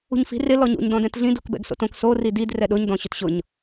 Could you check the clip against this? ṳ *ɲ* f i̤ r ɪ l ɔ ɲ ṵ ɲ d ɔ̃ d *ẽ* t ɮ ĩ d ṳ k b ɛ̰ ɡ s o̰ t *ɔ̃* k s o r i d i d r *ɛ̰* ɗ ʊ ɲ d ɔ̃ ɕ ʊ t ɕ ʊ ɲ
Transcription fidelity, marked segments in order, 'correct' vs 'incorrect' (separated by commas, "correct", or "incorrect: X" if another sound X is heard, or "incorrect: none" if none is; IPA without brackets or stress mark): correct, incorrect: ɛ̃, incorrect: õ, incorrect: ɛ